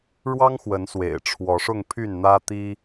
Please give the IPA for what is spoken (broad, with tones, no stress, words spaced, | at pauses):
ɻwɑ˦ŋxwə˨˦nswḛ˨˩ɪ̯ ʈ͡ʂʰwɔ˨˦ʂʊ˥˨ŋ pʰy˥˨nn̪ä˦t̪i˦